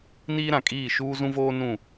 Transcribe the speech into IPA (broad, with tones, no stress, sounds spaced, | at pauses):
n iː˦ ɾ ã˨ kʼ iː˦˨ ʃ uː˦ z ũ˦ v oː˦ n ũ˦˨